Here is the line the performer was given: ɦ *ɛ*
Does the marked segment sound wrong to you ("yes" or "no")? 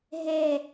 no